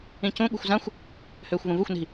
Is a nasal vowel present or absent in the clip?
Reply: present